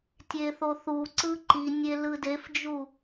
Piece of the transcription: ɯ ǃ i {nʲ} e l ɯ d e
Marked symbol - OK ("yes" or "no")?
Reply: yes